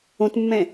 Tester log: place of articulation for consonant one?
alveolar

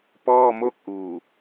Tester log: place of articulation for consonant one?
labial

